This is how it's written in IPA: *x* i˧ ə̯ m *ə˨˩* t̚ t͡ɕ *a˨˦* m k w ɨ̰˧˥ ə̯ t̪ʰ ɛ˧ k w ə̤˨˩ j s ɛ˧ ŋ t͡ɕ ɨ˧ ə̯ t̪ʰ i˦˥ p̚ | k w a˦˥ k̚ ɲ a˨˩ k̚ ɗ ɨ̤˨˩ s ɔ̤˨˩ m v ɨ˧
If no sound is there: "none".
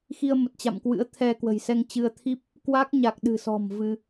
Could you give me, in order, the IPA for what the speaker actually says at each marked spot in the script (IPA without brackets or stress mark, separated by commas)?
x, ə˨˩, a̰˧˨